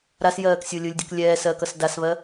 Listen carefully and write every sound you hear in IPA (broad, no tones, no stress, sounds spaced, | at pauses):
ɾ a s j ɜː k sʲ o lʲ ɯ lʲ dʲ ʌ k lʲ ɛː s ɜ k ʌ s d a s β ɜ